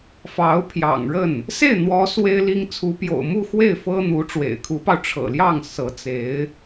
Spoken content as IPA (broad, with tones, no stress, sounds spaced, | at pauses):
f ɑ˧˥ ʊ̯ pʰ j ɑ̰˨˩ ŋ ɻ ə˥˩ n | s e˥˩ ɪ̯ n̪ w ɔ˧˥ s w e˥ ɪ̯ l i˥ ŋ t͡sʰ u˧˥ p j o̰˨˩ ʊ̯ m u˥˧ x w e˥˩ ɪ̯ f ɤ˥ n̪ u˧˥ ʈ͡ʂ w ḛ˨˩ ɪ̯ kʰ u˧˥ p ɑ˧ ʊ̯ ʈ͡ʂʰ ɤ̰˨˩ l j ɑ˥˩ ŋ s ɤ˧˥ t͡s e˧˥ ɪ̯